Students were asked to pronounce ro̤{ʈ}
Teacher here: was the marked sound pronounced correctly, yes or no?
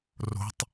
no